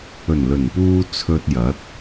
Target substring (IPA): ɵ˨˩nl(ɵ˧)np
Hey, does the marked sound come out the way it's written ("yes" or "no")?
no